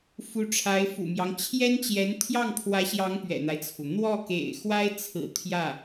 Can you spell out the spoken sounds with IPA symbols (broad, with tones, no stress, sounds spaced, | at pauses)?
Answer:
f u˧˥ ʈ͡ʂʰ a˧˥ ɪ̯ f ṵ˨˩ m j ɑ˦ ŋ t͡ɕʰ j ɛ˥ n t͡ɕ j ɛ˧˥ n t̪ʰ j ɑ˥˩ ŋ pʰ w ä˧˥ ɕ j ɑ˧˥ ŋ p ɥ ɛ̰˨˩ n̪ a˦ ɪ̯ t͡sʰ u˩ n̪ w ɔ˥˩ k ḛ˨˩ ɪ̯ x w a˥ ɪ̯ t͡sʰ ɹ̩˨˩ t̪ʰ j ä˥˩